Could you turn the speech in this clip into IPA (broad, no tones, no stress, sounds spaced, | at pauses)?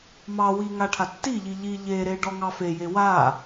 m ɑ w i ŋ a ʈʰ a tː i ʎ i ʎ i ʎ e ɾ e ɖ ɔ ŋ ɑ f e j e w a